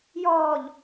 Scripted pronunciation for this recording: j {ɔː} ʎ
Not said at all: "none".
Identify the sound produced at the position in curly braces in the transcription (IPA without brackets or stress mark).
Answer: ɔː